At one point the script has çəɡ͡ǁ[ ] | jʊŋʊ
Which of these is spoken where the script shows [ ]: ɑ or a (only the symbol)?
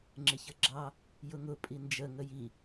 ɑ